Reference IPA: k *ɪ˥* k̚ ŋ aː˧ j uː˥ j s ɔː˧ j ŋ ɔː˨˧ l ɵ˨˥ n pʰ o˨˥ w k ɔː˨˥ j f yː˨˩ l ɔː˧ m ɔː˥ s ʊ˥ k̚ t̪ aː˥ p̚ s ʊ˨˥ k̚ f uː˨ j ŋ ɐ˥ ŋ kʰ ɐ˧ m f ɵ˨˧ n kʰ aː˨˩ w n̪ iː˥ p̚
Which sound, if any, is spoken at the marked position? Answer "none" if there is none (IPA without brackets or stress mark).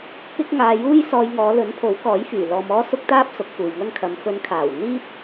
ɪ˥